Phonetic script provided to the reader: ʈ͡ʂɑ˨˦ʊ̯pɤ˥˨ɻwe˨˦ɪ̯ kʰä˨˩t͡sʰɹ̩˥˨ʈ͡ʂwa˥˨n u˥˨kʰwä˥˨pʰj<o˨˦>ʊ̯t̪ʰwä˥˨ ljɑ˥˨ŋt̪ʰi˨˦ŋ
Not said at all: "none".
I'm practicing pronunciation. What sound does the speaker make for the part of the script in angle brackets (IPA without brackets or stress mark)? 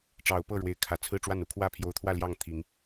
o˨˦